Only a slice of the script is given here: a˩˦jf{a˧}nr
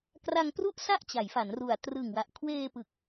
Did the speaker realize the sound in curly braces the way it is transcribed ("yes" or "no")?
no